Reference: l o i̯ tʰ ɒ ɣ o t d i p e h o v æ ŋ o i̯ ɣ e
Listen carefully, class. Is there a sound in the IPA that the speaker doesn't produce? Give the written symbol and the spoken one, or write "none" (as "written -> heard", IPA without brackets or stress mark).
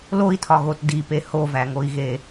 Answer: none